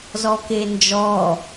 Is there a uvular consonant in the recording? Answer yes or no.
no